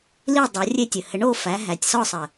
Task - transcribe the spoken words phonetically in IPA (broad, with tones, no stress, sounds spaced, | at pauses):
l i˥˨ dˤ o˨˦ rʲ e˥˨ tʲ ɘ˨˩ h ɘ˨˦ ɳ o˥˨ f æ˨˦ ɦ æ˨˩ tʲ s ɔ˥˨ sˤ ɘ˨˩